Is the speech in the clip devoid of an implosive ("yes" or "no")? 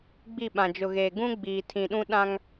no